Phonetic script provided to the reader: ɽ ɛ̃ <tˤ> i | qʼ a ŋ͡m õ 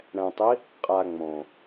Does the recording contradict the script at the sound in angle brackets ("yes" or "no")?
no